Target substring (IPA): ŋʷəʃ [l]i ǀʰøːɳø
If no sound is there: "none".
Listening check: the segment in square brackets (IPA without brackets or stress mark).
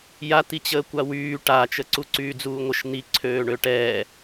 n̪